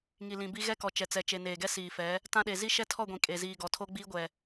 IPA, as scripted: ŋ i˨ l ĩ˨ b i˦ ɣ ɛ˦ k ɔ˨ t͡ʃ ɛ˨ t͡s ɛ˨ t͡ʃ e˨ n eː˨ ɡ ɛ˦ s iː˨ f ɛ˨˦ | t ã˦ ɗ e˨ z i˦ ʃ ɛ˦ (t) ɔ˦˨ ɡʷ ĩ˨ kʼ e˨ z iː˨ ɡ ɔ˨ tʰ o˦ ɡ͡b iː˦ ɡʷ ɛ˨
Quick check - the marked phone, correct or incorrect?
incorrect